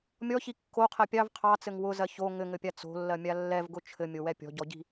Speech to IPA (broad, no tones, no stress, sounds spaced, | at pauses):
mʲ ɔ ç i kː o qʰ ɜ pʲ ɑ v qʰ ɑ t͡s ɘ ŋ w ʊ z ɜ ç o ŋ ɘ ŋ ɘ pʲ a t͡s o̤ lː ɜ mʲ a lː ɛ v ɡ ʊ t͡ʃʰ ɘ mʲ o w ɛ pʲ ɔ̤ ɟ ɔ ɟ i̤